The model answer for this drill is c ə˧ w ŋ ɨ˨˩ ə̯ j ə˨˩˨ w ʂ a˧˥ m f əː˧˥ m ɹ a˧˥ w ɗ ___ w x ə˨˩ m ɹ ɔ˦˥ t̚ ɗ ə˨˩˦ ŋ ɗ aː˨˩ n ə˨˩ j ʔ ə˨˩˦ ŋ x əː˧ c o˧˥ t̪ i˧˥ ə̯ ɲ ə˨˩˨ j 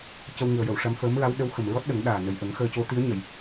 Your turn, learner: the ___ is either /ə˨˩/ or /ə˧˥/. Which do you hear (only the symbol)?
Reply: ə˧˥